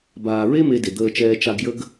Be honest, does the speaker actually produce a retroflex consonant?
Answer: no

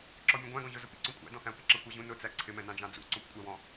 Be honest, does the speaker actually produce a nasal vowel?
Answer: yes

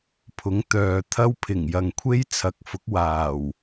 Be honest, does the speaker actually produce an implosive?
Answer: no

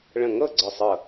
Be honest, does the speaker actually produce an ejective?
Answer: no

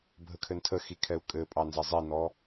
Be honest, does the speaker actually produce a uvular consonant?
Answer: no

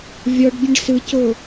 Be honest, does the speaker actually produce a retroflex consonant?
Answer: yes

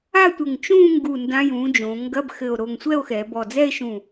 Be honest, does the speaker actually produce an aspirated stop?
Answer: no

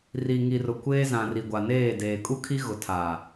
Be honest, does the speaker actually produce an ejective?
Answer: yes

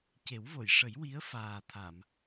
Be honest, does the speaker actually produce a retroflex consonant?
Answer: yes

